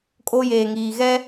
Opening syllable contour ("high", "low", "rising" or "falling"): high